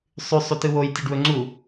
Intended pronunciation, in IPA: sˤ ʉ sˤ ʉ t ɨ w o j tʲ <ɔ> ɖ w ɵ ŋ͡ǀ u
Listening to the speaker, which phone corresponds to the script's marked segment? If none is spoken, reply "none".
ɵ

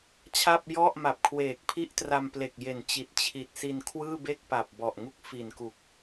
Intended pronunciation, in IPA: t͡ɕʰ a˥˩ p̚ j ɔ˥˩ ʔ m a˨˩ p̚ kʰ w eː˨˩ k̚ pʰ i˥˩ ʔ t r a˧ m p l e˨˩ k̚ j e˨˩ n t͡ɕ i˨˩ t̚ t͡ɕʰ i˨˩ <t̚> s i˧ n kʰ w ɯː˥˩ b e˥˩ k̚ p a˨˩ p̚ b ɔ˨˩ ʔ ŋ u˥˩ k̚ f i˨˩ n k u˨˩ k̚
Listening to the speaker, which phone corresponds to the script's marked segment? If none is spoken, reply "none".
t̚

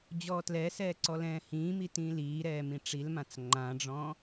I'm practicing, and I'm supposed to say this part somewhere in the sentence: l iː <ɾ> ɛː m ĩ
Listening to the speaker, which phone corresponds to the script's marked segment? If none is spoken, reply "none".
ɾ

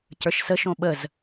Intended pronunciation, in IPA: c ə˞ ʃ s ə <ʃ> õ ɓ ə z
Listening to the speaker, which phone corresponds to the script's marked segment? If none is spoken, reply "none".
ʃ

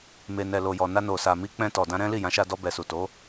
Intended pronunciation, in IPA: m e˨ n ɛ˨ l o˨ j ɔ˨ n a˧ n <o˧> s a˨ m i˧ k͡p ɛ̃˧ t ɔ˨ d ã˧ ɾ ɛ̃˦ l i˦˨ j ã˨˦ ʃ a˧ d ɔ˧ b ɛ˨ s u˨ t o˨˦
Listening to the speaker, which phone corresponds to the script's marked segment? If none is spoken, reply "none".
o˨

